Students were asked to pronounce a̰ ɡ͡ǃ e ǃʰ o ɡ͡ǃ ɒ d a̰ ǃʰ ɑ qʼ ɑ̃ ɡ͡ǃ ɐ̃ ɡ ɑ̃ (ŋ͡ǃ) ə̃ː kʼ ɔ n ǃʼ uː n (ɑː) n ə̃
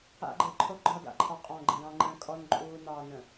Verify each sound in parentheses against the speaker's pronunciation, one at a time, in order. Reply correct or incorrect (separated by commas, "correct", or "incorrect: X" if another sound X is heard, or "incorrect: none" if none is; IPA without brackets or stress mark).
correct, correct